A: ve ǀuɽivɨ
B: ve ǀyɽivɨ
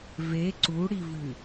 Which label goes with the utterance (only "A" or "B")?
A